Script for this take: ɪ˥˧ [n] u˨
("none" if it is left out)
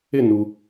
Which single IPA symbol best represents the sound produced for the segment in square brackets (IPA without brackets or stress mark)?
n